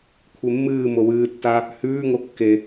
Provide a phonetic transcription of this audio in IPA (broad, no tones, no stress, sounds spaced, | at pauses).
kʷʰ e mː ɨː m o w ɨː tː a | h ʉː ŋ o kː e